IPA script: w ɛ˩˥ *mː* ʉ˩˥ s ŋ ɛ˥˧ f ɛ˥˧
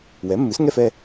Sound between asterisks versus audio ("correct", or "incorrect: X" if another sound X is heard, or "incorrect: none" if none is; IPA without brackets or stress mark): correct